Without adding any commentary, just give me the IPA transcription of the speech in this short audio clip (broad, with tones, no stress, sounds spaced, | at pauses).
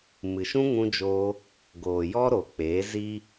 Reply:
m ɨ˨ ʃ ũ˦ ŋ ũ˧ d͡ʒ oː˧ | ɡ oː˨ j ɔ˦ ɾ o˨ k͡p eː˨˦ z i˦